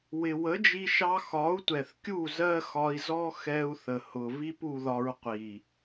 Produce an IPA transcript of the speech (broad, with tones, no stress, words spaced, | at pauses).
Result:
wɪ˨wə˨˦d͡ʒi˧ʃɑ˧ xɒ˨˦u̯tʷɛ˨θkʲu˦˨ zɜ˦xɒ˧i̯zɔ˦ xɛ˧u̯θə˨hʊ˨vi˦p u˧ðɒ˧ɹ qʷi˨